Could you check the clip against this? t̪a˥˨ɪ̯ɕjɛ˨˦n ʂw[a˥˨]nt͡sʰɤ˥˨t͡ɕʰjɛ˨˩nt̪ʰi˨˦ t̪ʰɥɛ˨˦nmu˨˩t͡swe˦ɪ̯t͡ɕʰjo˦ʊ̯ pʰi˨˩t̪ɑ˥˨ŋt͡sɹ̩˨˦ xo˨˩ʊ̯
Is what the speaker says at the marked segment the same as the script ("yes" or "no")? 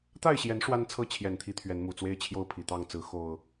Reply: no